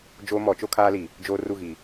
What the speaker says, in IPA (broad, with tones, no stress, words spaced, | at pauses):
d͡ʒoː˦mɔ˨˦t͡ʃo˦ kʰaː˦li˨ | d͡ʒoː˦ru˦˨ɣi˨